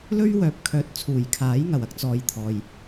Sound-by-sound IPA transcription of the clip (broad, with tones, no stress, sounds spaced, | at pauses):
l ɵ˥ ɥ w œː˨ p̚ kʰ œː˨˥ t̚ t͡sʰ uː˨˩ j kʰ aː˨˥ j ŋ ɐ˨˩ w ɐ˥ k̚ t͡s ɔː˨˧ j t̪ʰ ɔː˨ j